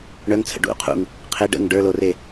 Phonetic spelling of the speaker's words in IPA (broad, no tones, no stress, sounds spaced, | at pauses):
ɳ œ ŋ t͡sʰ ə̰ ɖ ṵ qʰ ṵ ŋ | qʰ e ɖ ə̰ ŋ ɖ ə˞ l o r e